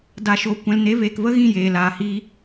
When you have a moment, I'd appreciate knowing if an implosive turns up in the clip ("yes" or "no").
no